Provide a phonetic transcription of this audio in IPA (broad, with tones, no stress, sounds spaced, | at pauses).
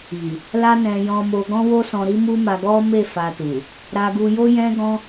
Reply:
i˨ | l a˦ n ɛ̃˧ j ɔ̃˧ m o˧ ɡ ɔ̃˦ w o˦ s ɔ̃˧ ɾ i˦ m u˦ m a˧ ɡ ɔ˦ m e˦˨ f a˧ t u˨ | ɾ a˧ ɡ u˧ j o˦ j ɛ̃˦ ɡ ɔ̃˦